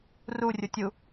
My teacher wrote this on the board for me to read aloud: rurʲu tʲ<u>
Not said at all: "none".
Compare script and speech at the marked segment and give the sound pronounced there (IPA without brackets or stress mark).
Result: u